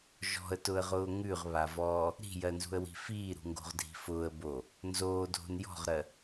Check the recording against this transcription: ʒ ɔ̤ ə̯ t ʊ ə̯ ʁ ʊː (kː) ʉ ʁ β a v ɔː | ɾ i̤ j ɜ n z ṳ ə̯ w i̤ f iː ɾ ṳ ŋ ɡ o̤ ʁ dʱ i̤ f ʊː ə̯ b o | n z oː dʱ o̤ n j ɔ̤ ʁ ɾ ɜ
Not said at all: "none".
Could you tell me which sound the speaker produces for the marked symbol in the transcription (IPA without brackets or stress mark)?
ŋ